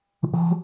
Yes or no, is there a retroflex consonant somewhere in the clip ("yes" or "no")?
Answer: no